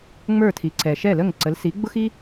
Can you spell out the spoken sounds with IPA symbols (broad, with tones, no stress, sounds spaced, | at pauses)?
ŋ͡m ə˞˥˩ tʰ i˩˥ ǀ ɛ˩ ʃ ɛ˥˩ l ə˥˩ ŋ ǀ ə˩˥ l s i˩˥ ɡ͡b ʊ˥ x i˥